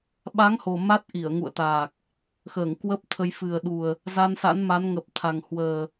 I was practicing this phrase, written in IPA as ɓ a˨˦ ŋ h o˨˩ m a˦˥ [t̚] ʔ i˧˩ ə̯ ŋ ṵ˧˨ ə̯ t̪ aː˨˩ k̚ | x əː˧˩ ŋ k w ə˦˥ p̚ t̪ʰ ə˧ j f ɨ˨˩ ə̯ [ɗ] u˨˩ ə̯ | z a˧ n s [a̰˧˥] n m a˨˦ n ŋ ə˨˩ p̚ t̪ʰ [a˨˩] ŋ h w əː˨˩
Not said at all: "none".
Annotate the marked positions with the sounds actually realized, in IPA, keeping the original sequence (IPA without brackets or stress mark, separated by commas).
t̚, ɗ, a̰˧˥, a˨˩